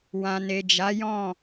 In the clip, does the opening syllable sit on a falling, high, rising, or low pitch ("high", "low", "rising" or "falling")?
low